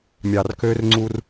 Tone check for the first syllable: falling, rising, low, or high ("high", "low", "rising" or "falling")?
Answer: low